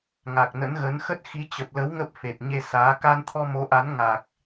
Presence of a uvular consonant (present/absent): absent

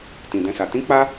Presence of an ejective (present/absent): absent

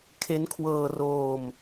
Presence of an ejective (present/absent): absent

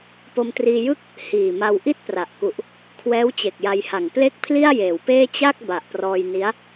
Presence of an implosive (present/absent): absent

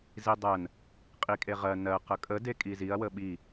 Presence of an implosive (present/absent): present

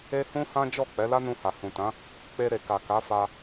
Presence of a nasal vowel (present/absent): present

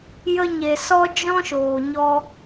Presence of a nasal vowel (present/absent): present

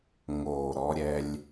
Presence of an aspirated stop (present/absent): absent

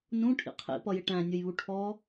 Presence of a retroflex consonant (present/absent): present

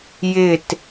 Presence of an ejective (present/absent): absent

